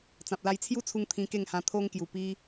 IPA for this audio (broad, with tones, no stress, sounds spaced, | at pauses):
t͡s ã˨ p̚ l a˧ j t͡sʰ j u˦ t͡sʰ u˧ ŋ t̪ʰ ĩ˧ k e˥˧ ŋ h ã˧ t̪ʰ o˦ ŋ k j u˨˩ p i˧